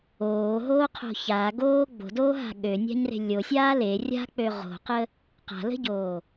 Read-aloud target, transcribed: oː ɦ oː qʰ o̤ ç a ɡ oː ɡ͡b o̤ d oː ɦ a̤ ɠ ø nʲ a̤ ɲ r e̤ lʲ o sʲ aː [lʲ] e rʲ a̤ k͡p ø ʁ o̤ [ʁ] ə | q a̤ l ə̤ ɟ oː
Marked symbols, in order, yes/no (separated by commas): no, no